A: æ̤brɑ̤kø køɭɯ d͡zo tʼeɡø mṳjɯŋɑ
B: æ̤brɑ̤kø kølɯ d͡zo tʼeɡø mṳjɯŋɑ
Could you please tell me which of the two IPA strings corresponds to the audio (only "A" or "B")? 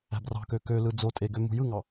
B